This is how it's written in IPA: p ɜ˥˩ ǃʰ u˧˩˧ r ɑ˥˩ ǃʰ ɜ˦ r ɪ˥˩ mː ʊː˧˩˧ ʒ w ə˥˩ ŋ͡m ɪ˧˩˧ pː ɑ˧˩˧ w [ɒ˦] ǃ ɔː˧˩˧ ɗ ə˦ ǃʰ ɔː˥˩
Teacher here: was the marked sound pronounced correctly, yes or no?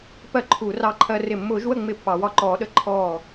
no